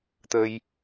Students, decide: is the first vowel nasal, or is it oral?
oral